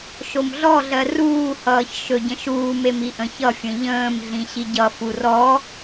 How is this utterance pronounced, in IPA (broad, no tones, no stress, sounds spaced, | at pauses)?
ʃ o m ɮ ɔ ɮ ɜ r uː h ʌː ç ʃ ɵ ɟ ə̃ ʃ uː m e m i ʔ ə̃ ç ʌ fʲ ə̃ ʎ ə̃ː m ɮ ĩ ɕ i ɟ ʌ f u r ɔ